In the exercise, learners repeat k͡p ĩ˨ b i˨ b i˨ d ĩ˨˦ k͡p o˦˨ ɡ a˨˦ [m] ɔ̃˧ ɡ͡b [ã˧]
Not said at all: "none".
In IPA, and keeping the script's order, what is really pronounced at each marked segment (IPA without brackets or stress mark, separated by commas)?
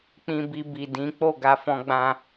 f, ã˧